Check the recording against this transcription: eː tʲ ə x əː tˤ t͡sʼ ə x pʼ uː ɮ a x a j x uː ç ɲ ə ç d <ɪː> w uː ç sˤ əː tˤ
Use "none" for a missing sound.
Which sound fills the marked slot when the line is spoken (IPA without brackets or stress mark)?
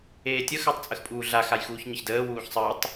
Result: əː